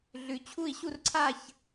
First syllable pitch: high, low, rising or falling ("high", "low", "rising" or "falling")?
low